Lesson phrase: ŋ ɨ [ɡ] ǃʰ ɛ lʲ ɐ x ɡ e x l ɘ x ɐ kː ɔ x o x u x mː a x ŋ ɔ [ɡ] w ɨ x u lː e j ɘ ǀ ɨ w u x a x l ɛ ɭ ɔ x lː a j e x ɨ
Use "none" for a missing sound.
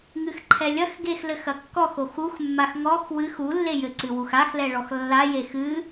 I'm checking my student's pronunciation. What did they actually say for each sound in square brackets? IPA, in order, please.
x, x

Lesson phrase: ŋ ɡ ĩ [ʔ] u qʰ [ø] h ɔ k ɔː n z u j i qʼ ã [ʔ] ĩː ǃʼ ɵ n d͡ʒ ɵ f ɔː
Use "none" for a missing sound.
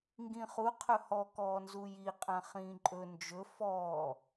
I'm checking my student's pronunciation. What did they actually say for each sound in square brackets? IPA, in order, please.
χ, ɵ, χ

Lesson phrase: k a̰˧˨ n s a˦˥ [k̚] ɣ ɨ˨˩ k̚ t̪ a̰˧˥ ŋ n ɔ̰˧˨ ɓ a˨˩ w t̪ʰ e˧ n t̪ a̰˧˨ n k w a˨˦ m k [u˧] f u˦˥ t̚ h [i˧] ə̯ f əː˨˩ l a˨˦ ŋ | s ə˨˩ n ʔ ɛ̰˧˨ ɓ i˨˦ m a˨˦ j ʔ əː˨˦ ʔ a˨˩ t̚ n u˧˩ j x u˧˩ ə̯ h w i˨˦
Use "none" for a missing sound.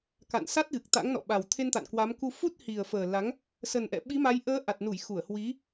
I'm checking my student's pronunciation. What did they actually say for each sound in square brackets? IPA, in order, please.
t̚, u˧, i˨˩

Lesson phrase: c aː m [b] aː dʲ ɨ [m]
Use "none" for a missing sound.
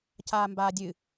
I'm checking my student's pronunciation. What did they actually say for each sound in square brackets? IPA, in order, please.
b, none

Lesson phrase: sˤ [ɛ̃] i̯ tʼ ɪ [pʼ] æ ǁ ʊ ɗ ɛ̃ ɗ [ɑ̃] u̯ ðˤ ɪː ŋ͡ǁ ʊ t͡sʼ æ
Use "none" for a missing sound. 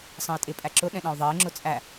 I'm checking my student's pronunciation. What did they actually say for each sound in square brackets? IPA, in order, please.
ə̃, pʼ, ɑ̃

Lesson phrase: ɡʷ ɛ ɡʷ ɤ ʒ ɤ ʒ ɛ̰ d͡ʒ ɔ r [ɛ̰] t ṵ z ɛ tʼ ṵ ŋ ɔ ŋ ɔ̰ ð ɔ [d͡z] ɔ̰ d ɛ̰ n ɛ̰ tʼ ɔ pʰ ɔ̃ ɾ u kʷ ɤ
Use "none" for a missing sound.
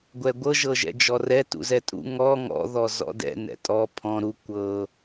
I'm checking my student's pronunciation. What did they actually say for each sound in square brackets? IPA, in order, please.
ɛ, z

